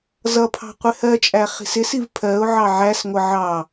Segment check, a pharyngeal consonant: present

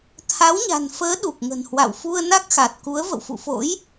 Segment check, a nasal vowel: absent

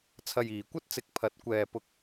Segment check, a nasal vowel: absent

